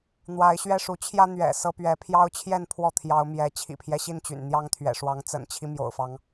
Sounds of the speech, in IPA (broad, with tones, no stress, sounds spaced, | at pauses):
n̪ w a˨˦ ɪ̯ ɕ ɥ ɛ˥˨ ʂ u˨˦ t͡ɕʰ j ä˦ n̪ ɥ ɛ̰˨˩ s ɤ˦ p ɥ ɛ˨˦ pʰ j ɑ˦ ʊ̯ t͡ɕʰ j ɛ˥˨ n pʰ w ɔ˥˨ t̪ʰ j ɑ˨˦ ʊ̯ m j ɛ˨˦ t͡ɕʰ ḭ˨˩ pʰ j ɛ˦ ɕ i˥˨ n t͡ɕ y̰˨˩ n n̪ j ɑ˦ ŋ t̪ʰ ɥ ɛ̰˨˩ ʂ w ɑ˨˦ ŋ t͡s ə̰˨˩ n t͡ɕʰ i˦ m j o̰˨˩ ʊ̯ f ɑ˨˦ ŋ